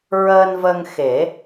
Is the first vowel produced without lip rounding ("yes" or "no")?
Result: yes